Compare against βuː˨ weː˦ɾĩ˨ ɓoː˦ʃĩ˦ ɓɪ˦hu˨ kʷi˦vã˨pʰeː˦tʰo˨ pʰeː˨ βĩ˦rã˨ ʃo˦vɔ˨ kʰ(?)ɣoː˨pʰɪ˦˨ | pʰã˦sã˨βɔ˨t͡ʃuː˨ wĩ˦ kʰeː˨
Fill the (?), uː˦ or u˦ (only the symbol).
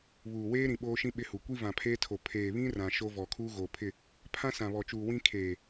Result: uː˦